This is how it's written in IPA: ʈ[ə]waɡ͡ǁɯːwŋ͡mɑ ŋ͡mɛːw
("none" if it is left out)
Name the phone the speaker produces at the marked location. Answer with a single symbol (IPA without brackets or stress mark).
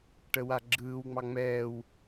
ə